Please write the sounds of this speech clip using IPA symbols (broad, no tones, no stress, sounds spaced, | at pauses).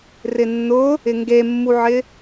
r ɪ nː ʊ | ɪ ŋ ɡ e mː u ʕ ɪ